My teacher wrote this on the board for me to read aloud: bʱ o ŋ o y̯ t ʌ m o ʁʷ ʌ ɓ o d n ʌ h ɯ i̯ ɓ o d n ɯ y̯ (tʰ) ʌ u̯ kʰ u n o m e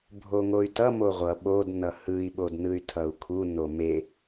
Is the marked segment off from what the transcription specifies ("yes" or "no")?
no